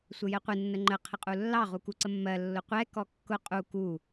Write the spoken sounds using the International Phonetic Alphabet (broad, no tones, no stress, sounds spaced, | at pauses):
sʷ ə j ɛ qʷ ɪ nː ə ŋ͡ǃ ə qʰ ə qʼ u lː ɑ ʁ u k u ǀ ə mː ɜ lː ʊ qʷ ɛ k ɔ kː ʊ qʼ u k u